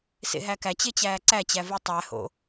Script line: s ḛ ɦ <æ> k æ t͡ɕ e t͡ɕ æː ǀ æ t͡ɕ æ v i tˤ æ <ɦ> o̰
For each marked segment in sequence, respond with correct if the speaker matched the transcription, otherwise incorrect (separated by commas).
correct, incorrect